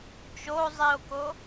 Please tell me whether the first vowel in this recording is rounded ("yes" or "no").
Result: yes